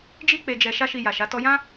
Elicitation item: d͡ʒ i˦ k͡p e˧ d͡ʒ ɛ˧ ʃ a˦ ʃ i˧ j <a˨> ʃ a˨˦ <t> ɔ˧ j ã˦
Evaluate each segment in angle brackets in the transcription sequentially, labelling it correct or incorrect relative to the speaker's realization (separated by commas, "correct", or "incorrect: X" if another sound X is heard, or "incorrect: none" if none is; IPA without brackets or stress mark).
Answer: correct, correct